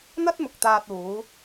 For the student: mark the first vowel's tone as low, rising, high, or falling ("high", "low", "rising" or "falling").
high